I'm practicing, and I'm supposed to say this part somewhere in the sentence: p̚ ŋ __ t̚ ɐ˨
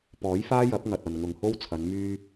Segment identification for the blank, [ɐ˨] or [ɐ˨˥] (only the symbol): ɐ˨